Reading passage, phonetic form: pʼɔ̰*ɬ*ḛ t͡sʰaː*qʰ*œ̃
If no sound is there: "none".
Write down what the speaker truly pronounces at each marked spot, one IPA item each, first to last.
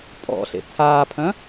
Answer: ɬ, pʰ

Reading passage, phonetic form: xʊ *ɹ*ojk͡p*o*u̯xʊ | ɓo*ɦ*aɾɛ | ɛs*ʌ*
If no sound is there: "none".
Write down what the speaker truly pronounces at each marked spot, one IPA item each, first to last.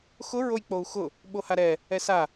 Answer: ɹ, o, h, a

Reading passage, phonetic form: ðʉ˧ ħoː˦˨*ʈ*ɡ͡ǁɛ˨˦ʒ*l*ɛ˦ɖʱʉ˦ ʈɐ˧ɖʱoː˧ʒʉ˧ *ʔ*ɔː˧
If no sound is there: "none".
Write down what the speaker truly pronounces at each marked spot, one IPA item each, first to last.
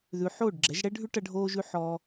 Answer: ɖ, ɽ, ħ

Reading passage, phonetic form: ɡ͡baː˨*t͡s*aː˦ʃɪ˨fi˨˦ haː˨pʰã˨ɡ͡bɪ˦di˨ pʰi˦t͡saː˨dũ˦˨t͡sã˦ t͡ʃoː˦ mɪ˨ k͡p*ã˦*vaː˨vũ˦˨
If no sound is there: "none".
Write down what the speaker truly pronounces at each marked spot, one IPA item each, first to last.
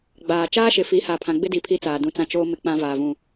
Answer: t͡ʃ, ã˦

